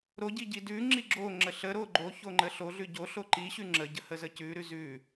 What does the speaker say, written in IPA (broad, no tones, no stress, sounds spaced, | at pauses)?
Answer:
ɾ o ɟ i ɟ i d ʉ ŋ͡ǁ i ɡ͡ǁ o ŋ͡ǁ ə ɬ ə ɾ o ɡ͡ǃ o ç o ŋ͡ǃ ə ɬ o ɮ ʉ ɟ o ɬ o ǃ i ɕ ʉ ŋ͡ǁ ə ɟ ə h ə z ə c ʉ ɾ ʉ z ʉ